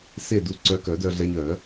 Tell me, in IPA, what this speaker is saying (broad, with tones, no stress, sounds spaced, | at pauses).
s e˥˨ d u˧ ǀ œ˧ k œ˨˩˦ d œ˧ ɮ ɛ˧ ɲ œ˨˩˦